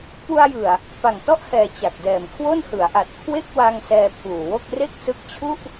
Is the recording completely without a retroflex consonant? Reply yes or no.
yes